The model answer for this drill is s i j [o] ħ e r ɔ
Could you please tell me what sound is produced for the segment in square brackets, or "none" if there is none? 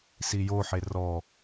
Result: o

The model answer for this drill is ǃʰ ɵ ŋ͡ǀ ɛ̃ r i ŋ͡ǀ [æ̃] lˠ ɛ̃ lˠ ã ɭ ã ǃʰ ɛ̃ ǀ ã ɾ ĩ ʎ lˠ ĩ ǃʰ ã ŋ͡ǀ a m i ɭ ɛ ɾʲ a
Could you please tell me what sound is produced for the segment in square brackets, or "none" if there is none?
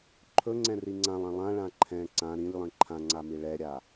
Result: ã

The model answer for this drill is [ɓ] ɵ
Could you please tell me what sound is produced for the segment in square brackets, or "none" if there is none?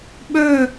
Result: ɓ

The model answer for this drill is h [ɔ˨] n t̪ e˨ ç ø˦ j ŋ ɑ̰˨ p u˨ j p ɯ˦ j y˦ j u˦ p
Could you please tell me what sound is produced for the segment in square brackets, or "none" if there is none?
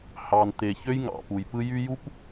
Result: ɑ˨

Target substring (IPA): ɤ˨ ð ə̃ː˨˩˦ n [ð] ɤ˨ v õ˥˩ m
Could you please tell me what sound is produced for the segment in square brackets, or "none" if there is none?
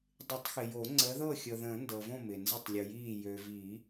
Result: d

